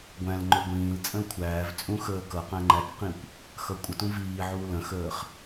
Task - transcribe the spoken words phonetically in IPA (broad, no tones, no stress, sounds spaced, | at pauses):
ɡʷ æ̃ l ŋ͡ǃ ɵ ɡʷ ĩː l t͡sʼ ə̃ l kʷʰ æː v t͡sʼ ũ x əː k ʌ q æ̃ ŋ͡ǃ æ k q ĩ kʷ | x ʌ kʷʼ ə t ũ v iː ʕ uː l ə̃ x əː χ